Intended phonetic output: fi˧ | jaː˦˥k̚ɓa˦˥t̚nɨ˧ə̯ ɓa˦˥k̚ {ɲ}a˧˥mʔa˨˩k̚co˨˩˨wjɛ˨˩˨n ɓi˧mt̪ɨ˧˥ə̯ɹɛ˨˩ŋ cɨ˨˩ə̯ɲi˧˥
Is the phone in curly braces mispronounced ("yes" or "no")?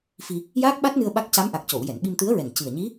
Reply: yes